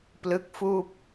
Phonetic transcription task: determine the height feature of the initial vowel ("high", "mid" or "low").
high